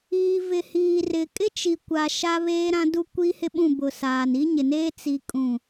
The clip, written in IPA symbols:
iː˨ v ɪ˨ h iː˨ r ɪ˨ kʼ ɪ˦ t͡ʃ i˨ kʷ a˨ ʃ a˦ β eː˦ ɾ ã˦ d u˦ kʷ i˦ h ɪ˦ ɓ ũ˦˨ b ʊ˨ s aː˨ n i˦ ɲ ɪ˨ n eː˦ t͡s i˦ kʼ ũ˦˨

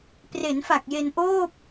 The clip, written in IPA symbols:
p r e˩˦ n f a˨˩ k̚ j e˧ n ʔ oː˥˩ p̚

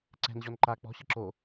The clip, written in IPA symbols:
ǀ ɛ̤ n ʑ ɔ n ǃ a k͡p ɔ̤ ɕ ɯ ǁ o

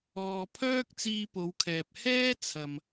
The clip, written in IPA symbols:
ɔː˨ pʰ œː˥ k̚ t͡s iː˧ p o˨˧ w kʰ ɛː˨ p̚ h ɛː˥ t͡sʰ ɐ˨ m

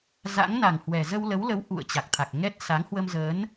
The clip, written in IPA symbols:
z a̰˧˥ ŋ n a˨˩ ŋ h w ɛ˨˩ z ə˧ w l ə˨˦ w l ə˨˦ w ʔ ṵ˧˨ ə̯ t͡ɕ a˨˩ k̚ t̪ʰ a˨˩ k̚ ŋ ɛ˦˥ t̚ s a˨˦ ŋ h w ə˧ m z əː˨˦ n

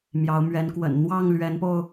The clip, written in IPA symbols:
m j ɑ˨˦ ʊ̯ m ɥ ɛ˨˦ n k w ə̰˨˩ n n̪ w ɑ˥˨ ŋ l ɥ ɛ˨˦ n p o˧ ʊ̯

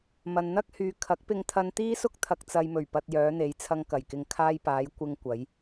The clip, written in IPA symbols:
m ɐ˨ n n̪ ɐ˥ k̚ h yː˨ kʰ ɐ˨˥ k̚ p ɪ˧ ŋ t̪ʰ ɐ˧ n t̪ iː˥ s ʊ˥ k̚ t̪ʰ ɐ˨ k̚ t͡s ɐ˨ j m ɵ˨˩ ɥ p ɐ˨ t̚ j œː˨˧ n̪ e˨˧ j t͡sʰ ɐ˧ ŋ k ɐ˨˩ j k ɪ˨ ŋ kʰ aː˧ j p aː˨˧ j kʷ ɪ˧ ŋ kʷ ɐ˨˧ j

